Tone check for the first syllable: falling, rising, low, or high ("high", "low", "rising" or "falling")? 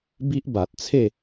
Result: high